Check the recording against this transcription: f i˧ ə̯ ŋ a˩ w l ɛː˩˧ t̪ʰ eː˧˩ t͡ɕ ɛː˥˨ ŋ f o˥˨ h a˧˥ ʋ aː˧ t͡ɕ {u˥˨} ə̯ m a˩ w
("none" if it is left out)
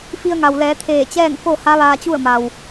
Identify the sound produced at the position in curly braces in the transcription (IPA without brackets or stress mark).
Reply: u˥˨